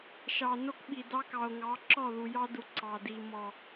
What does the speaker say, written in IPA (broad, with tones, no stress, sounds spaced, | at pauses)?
ʃ ɑ˨ n o˦ k ɓ i˨ d ɑ˦ k ɑ˨ o̯ ŋ ɑ˨˦ ǁ ɔ˦˨ ð u˨ j ɑ˦ d u˨ ǀ ɑ˨ d i˨ m ɔ˨